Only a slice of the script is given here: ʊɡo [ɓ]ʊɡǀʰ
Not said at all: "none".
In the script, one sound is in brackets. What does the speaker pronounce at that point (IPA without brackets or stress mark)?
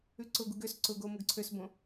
m